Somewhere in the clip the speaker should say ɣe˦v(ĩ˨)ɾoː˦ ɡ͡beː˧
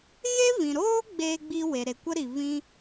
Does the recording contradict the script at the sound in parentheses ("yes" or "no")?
no